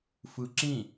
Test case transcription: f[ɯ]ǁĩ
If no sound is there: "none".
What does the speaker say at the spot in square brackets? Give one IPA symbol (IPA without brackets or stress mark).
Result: ɯ